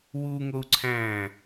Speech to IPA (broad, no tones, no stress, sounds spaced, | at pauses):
w u ŋ o u̯ ǀʰ æ̃ː